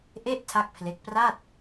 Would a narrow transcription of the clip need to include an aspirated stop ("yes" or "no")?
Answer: yes